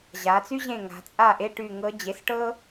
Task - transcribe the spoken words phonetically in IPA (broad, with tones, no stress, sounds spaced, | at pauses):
ʑ a˩˧ t͡s y˥ ʑ ẽ˦˨ ŋ a̤˩˧ t͡sʼ a˦˨ ʔ e˧˥˧ ʈ y˦˨ ŋ ɤ˧˥ d͡ʑ e˩˥ s ʈ ɤ˥